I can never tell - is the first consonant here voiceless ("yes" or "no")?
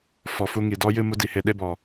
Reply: yes